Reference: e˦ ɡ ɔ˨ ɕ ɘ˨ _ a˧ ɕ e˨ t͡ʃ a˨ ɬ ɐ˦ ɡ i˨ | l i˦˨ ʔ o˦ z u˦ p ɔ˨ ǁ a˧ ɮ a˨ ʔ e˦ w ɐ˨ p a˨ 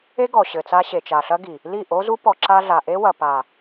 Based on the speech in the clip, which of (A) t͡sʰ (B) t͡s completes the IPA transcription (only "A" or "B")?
B